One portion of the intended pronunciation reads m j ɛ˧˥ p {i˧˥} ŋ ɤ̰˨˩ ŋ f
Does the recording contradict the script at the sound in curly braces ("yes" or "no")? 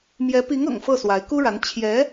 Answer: no